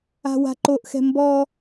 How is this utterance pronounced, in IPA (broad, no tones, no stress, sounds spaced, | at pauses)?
a̤ w a̤ ǃ o ʔ x ɛ̤ m b ɔ